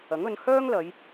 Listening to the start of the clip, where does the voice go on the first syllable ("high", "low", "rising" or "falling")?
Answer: rising